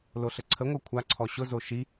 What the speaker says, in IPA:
l o ɬ ə ǀʰ ə ŋʷ ɤ kʷʰ a ǀʰ ɔ ɕ ʊ z o ʃ i

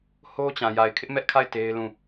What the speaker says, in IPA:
h o˦ t͡ɕ ã˨ j a˨ ɪ̯ kʰ ɪ˦ ʔ m ɛ˦ ʔ kʰ a˦˨ ɪ̯ t e˦ ɪ̯ l ũ˦˨

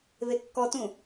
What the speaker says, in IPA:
β e kː ɔ t ũ

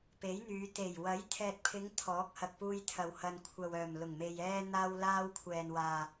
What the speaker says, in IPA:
p e˨˥ j n̪ yː˨˧ t̪ e˨˩ j w ɐ˨˥ j t̪ʰ ɛː˨ t̚ pʰ ɪ˨˧ ŋ t̪ʰ ɔː˨˥ k̚ h ɐ˨ k̚ p uː˧ j t̪ʰ ɐ˨ w h ɐ˨ n kʷʰ ɐ˨ w œː˨˩ m l ʊ˨˩ ŋ m e˨ j ɛː˧ n̪ aː˥ w l aː˥ w kʷʰ ɛː˨ n w aː˨

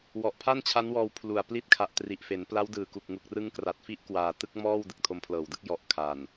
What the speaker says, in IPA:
w ɔ˨˩ ʔ pʰ a˥˩ n t͡ɕʰ a˦˥ n w ɔː˧ w pʰ l u˨˩ a̯ p l i˦˥ t̚ kʰ a˨˩ ʔ t r i˨˩ ʔ f e˩˦ n p l a˦˥ w d ɯː˨˩ k u˨˩ k̚ ŋ u˨˩ k̚ r ɯ˦˥ ŋ k r a˨˩ t̚ f i˥˩ ʔ k w aː˨˩ t ɯ˥˩ k̚ m ɔː˥˩ w d ɯ˨˩ k̚ tʰ o˧ m pʰ l ɤː˨˩ w d ɯ˦˥ k̚ j ɔ˨˩ ʔ kʰ a˨˩ n

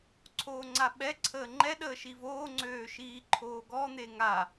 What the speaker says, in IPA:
ǀʰ oː ŋ͡ǀ a ɓ ɛ ǀʰ əː ŋ͡ǃ ɛ ɗ əː ʃ i v oː ŋ͡ǀ øː ʃ iː ǃʰ oː ɡ ɔ n̪ e ŋ a

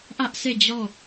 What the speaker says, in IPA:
ʔ ä˦ ʔ sʰ e˦˨ d͡ʑ ɔ˦˨

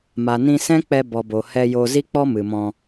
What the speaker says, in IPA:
m a˨ n ĩ˧ s ɛ̃˦ k͡p ɛ˧ b ɔ˨ b o˨ h ɛ˧ j o˧ z i˦ k͡p ɔ˦ m ɨ˨ m ɔ̃˧

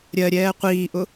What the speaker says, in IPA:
ɾʲ ɜ ɾʲ ɛː qʷ iː ʔ ʊ

